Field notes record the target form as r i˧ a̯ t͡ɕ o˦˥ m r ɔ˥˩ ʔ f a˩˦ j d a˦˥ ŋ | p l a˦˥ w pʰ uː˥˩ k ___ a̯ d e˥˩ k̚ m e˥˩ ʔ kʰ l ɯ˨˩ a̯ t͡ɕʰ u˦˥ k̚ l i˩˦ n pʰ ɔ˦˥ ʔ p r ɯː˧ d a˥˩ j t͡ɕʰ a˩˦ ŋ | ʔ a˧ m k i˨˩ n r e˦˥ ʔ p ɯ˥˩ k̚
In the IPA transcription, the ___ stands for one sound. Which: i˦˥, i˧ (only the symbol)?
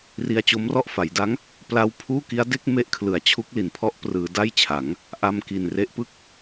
i˦˥